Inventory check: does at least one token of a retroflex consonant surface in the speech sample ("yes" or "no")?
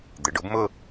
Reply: yes